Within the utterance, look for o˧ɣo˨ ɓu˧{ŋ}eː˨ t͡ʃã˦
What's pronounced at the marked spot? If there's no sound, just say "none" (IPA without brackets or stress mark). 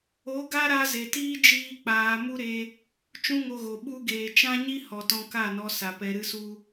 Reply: ɡ